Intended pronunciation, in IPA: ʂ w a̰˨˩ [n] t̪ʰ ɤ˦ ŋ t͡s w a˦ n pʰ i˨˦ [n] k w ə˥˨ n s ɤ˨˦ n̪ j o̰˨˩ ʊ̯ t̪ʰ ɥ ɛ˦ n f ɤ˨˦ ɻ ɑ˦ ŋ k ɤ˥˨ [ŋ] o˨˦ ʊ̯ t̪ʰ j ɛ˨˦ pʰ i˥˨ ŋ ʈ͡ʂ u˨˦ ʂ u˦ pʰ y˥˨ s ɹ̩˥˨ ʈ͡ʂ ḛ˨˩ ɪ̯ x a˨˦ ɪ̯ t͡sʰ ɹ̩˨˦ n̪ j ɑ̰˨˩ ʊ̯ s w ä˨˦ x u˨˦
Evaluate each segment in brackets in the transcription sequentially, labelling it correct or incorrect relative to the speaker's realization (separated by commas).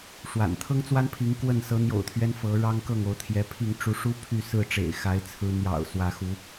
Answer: correct, incorrect, correct